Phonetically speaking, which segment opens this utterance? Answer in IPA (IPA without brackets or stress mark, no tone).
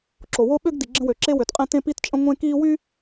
ǁ